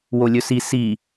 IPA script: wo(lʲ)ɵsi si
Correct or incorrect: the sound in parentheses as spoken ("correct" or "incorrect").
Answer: correct